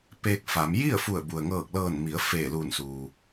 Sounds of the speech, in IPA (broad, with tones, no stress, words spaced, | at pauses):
peː˧k̚fa˩˧m ji˥˨ə̯ fu˧˩ə̯ bu˩ə̯ŋɤː˧˩k̚lɤː˧˩nmi˩˧ə̯ feː˧˩luː˧˩nsuː˩